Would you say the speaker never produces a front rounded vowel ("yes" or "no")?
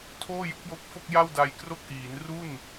yes